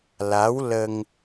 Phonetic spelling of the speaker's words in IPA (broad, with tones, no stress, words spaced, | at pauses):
la˧˥wlə˧ŋ